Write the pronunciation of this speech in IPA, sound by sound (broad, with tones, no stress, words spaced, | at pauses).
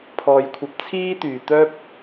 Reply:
pʰɔː˨jkʷʰɐ˨˥p̚ t͡sʰiː˥t̪yː˧ t̪œː˥p̚